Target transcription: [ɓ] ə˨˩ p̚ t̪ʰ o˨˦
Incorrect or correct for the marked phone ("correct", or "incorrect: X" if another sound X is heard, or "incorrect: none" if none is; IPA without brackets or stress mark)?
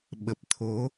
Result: correct